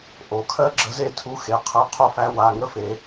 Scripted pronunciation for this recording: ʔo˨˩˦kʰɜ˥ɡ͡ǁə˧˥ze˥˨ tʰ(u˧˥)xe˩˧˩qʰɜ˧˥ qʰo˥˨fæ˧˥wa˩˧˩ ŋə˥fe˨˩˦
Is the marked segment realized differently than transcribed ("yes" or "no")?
no